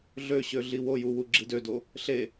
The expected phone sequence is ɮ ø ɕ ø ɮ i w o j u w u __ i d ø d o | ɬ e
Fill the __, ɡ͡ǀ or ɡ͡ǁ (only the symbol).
ɡ͡ǁ